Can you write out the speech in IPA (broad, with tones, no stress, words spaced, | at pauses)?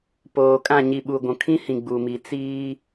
poː˨kʼã˦˨ ɲi˨ɓu˨ ɡʷũ˨kʰĩ˦hĩ˨ ɡ͡bu˨mi˨ t͡siː˦